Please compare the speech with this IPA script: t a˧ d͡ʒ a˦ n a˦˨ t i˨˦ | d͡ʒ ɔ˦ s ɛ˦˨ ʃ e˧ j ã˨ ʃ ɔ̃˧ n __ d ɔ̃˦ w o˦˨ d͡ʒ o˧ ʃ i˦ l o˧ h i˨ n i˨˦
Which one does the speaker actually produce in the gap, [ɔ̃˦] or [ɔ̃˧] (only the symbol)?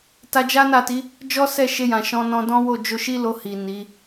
ɔ̃˧